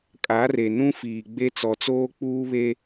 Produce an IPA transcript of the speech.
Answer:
kʼa˨˦re˨ nũ˦fiː˨ɡ͡be˦ t͡sɔ˨t͡soː˦k͡puː˦βe˦

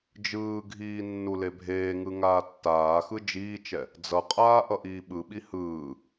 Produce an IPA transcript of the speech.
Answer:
d͡ʒɯːɡʱiː nːulebʱeːŋɯ ŋaːtːaːxɯ d͡ʒiːt͡ʃɛ | d͡zʌqʼaː ʔʌʔiːɓɯɓi hɯː

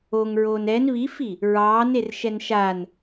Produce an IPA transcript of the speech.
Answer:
oŋɹoːn ɛn βifi | ɹɑːnerʃɛn ʃan

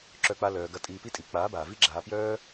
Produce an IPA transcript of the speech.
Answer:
ǁœ˧k͡pa˧ lœː˧ɡɐ˦ tʼiː˧pi˦tʼi˨˦ k͡paː˨˦baː˨ vi˦ɡ͡ǁaː˧pjœː˦

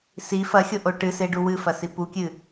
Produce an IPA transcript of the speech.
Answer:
si fɐxʲoʔo ʈɨseɖu wɨfɐsi pukʲɨ

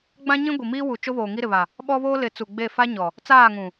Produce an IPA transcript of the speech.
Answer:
ɡ͡bã˦ɲĩ˦ɡʷi˨ miː˦wu˨ t͡ʃo˦βoː˨ ŋi˦ɾɪ˨βa˨ | ɓɔ˦βoː˦ lɪ˨˦t͡su˨ ɡ͡be˦˨fa˦ɲɔ˨ | t͡saː˦˨ŋũ˨

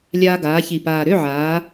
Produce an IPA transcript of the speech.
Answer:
lʲaː˧ɡaː˩˧çi˨˩ paː˨˩ɾø˧˥˧ʕaː˩˧

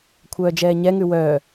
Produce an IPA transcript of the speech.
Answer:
kʷʰœːd͡ʒɛːɲɛŋʉ wœ

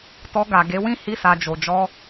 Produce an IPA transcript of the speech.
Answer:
tɔ˧ ɡa˨ɡe˨˦wĩ˦ hi˧sa˨d͡ʒo˨ d͡ʒɔ˧

